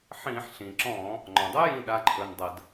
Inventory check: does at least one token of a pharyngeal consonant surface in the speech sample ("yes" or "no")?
yes